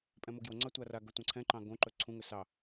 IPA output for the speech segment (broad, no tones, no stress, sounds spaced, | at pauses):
pʼ ɛ̃ m o ɡ j o ŋ͡ǀ ɑ tʷ a r a ɡ ɵ tʷ ã ǀʰ ɛ̃ ǃ ɑ̃ ɡ õ ǃ ɵ ǀʰ ũ ŋ ɵ s ɑ